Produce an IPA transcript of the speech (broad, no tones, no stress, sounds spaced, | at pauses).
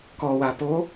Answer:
k ɔ w a p o